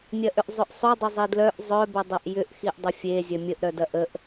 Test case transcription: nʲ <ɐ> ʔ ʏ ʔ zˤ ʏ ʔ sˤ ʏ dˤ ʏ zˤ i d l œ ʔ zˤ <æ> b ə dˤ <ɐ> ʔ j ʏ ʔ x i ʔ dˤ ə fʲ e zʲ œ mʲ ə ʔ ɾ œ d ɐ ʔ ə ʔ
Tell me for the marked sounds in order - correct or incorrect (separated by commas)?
correct, incorrect, correct